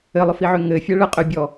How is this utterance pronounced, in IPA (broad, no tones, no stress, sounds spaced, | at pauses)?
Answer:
ɘ lˠ ʊ f i ʕ ø ŋ ɘ fʲ ɛ ɭ ɘ qʼ ø bʲ ɔ